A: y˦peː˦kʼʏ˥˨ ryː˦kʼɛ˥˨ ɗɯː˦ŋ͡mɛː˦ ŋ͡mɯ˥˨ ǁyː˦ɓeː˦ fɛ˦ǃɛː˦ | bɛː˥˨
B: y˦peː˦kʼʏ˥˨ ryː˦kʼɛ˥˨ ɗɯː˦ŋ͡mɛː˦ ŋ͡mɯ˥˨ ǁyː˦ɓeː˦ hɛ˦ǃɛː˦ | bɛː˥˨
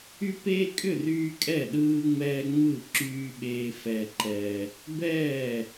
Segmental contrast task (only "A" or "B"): A